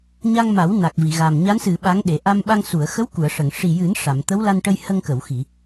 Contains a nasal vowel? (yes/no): no